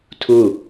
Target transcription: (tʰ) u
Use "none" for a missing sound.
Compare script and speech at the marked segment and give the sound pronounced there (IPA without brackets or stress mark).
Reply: tʰ